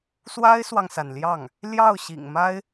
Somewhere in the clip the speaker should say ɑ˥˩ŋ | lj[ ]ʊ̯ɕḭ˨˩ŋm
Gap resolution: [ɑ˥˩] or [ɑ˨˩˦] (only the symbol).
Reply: ɑ˥˩